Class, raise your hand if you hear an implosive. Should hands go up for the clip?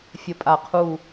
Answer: no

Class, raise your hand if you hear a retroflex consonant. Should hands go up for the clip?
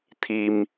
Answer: no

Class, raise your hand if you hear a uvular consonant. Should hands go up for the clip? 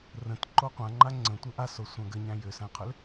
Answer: yes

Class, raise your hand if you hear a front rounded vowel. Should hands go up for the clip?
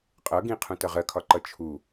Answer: no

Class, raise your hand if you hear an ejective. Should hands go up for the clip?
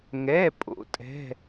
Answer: yes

